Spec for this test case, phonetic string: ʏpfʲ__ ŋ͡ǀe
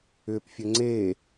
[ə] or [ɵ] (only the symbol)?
ə